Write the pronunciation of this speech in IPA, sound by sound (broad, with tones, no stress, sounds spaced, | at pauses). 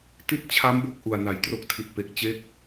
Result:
t i˥˩ t̚ t͡ɕʰ a˦˥ m b o˦˥ k̚ ʔ u˨˩ a̯ n a˩˦ j t r o˦˥ k̚ tʰ i˨˩ t̚ p e˨˩ k̚ t͡ɕ e˥˩ k̚